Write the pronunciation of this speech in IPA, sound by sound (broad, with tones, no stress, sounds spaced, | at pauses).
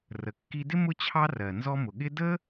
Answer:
r ə˩ kː i˧ d ɪ˥ m ʊ˥ t͡ɕʰ ɑ˥ r ɜ˩ n z ɔ˧ m ʊ˩ ɠ ɪ˥ d ə˥